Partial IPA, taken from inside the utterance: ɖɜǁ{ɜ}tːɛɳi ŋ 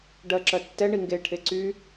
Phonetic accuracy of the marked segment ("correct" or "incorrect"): correct